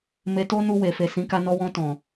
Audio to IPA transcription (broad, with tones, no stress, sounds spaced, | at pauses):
m e˧ t o˦ n u˧ w e˨ f e˨ s ĩ˨˦ k a˧ n ɔ˧ w ɔ̃˧ t ɔ̃˨